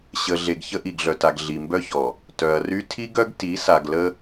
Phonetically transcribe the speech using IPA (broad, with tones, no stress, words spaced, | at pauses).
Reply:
ɕə˨ɮe˨ɡ çə˦ʔi˨ɡɮœ˨ta˨ɡ ɮi˨mbœ˦çɔ˨ | tœ˨ɐ̯ry˦ tʰi˦ɡœ˦ɡ ti˨˦ sa˨ɡlə˦